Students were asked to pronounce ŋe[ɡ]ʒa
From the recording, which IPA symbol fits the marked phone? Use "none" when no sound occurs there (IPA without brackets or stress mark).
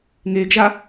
ɡ